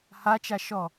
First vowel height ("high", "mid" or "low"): low